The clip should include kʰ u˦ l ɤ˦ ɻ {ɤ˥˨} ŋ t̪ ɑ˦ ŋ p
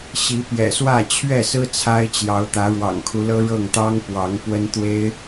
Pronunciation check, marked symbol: correct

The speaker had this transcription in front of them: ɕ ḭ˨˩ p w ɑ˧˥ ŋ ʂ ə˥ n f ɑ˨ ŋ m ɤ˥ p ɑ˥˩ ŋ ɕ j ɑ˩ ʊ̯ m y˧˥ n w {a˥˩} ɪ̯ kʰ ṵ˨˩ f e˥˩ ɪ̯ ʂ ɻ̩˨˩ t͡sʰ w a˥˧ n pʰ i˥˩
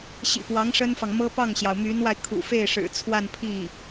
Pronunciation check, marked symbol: incorrect: a˧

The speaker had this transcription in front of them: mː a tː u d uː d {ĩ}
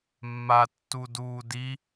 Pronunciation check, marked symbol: incorrect: i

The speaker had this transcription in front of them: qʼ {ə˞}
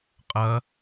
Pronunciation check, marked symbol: incorrect: ɐ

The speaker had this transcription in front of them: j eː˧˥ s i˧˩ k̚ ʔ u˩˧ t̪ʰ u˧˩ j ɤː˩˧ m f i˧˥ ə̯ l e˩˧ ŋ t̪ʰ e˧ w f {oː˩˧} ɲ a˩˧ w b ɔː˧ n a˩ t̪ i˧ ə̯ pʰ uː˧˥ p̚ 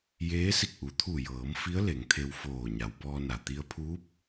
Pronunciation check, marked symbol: incorrect: oː˧˩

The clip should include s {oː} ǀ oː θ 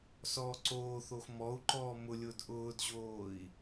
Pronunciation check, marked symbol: incorrect: ɔː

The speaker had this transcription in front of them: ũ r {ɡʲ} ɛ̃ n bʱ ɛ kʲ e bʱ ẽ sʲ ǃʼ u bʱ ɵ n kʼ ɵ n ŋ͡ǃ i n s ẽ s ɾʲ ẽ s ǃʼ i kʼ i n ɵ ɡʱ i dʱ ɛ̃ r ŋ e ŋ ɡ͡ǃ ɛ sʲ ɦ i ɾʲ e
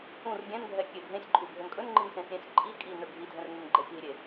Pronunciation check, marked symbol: correct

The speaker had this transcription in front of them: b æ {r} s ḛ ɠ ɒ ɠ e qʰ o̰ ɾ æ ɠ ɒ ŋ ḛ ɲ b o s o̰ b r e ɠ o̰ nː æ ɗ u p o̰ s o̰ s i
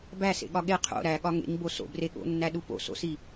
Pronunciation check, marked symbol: incorrect: none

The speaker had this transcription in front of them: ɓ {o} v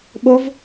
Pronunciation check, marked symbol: correct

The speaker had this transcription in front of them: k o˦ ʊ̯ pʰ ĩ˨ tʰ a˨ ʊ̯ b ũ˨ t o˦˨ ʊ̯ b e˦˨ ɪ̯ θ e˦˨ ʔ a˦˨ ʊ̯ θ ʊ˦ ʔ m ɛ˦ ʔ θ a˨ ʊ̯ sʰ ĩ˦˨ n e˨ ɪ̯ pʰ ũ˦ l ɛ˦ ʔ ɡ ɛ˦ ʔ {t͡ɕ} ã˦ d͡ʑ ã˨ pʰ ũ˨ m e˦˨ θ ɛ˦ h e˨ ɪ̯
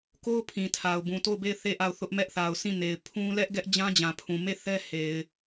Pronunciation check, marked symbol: incorrect: d͡ʑ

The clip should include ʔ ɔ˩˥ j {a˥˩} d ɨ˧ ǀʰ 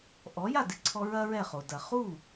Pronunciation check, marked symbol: correct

